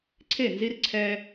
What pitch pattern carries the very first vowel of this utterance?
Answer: falling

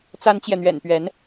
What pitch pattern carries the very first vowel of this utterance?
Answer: high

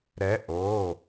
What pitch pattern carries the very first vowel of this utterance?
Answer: rising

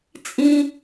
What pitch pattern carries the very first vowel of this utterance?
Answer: high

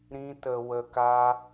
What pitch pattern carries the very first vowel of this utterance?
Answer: high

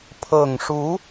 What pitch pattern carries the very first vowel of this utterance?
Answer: low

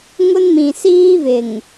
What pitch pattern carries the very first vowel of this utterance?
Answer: high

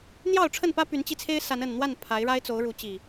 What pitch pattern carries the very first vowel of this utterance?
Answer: falling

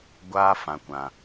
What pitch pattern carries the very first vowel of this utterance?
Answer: high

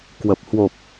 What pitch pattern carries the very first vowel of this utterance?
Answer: low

